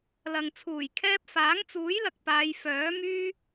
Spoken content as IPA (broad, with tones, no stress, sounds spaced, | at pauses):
l ɐ˨ ŋ t͡sʰ uː˨˩ j kʰ ɛː˥ p̚ f aː˨˥ ŋ t͡s uː˨˥ j l ɐ˨ k̚ p aː˨˧ j f œː˨˥ m yː˥